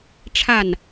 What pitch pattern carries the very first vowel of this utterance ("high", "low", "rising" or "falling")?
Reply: falling